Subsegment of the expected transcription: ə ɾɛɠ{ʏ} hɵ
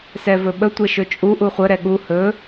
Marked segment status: incorrect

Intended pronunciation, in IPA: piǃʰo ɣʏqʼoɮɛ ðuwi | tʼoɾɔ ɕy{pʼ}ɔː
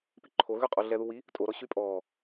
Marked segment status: correct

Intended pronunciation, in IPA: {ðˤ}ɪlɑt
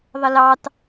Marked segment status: correct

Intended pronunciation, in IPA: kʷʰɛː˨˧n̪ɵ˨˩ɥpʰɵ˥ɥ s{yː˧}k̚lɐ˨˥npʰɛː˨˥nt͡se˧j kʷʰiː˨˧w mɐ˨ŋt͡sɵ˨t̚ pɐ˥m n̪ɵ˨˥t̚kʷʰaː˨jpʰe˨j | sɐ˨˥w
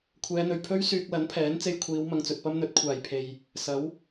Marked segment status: correct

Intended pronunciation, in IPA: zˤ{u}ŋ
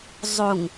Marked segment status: correct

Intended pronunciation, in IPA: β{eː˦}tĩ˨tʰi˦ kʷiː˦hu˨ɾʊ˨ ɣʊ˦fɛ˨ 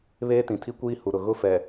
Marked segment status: correct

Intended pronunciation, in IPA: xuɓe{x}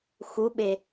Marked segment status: incorrect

